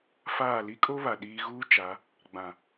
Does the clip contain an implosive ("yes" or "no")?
yes